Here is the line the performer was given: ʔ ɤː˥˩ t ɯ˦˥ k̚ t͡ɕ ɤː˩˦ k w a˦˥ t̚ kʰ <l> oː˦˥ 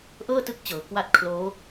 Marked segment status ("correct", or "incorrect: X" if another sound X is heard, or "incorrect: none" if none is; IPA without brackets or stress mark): correct